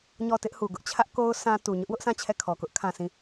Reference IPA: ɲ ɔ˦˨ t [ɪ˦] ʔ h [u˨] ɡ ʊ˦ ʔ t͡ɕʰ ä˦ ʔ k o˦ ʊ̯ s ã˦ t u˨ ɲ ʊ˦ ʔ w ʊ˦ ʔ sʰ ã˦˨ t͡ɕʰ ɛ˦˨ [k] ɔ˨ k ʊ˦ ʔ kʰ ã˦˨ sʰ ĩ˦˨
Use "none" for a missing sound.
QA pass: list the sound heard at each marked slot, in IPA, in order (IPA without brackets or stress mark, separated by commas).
ɪ˦, u˨, kʰ